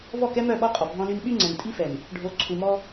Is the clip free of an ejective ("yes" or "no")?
no